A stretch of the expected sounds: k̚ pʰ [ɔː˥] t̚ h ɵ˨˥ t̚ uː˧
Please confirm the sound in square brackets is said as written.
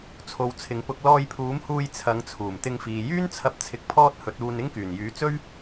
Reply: yes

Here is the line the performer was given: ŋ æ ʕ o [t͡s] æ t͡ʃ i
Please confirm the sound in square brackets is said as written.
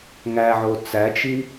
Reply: yes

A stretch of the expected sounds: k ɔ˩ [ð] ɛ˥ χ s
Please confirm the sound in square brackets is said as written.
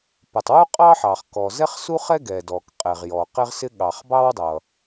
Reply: no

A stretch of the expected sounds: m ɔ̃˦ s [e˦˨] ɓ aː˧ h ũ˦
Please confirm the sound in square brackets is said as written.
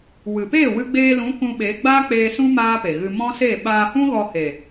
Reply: yes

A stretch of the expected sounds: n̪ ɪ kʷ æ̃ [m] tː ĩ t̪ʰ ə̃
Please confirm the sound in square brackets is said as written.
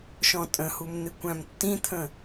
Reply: yes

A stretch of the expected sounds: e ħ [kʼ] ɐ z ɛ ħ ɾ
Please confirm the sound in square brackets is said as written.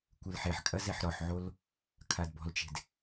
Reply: yes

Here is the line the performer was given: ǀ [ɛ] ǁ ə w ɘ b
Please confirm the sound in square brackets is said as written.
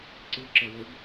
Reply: no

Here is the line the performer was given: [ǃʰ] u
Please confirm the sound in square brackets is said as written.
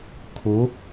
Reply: no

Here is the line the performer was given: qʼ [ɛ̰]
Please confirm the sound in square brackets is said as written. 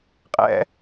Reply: yes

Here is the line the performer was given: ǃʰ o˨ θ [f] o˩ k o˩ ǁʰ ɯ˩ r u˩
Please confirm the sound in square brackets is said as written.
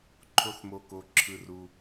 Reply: no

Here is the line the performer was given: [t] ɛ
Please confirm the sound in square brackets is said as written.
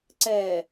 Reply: no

